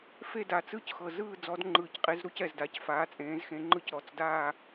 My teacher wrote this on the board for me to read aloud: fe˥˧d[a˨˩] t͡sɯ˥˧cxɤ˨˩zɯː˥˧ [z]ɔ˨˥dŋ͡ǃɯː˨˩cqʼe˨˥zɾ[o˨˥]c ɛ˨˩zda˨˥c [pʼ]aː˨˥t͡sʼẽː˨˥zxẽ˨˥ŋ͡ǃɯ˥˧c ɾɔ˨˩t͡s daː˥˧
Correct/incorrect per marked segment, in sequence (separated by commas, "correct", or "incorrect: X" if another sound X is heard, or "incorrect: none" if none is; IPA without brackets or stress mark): correct, incorrect: d͡z, incorrect: u˨˥, incorrect: f